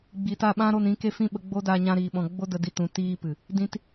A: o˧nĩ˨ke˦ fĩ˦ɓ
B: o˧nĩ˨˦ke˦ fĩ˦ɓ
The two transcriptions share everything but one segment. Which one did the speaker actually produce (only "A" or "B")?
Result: B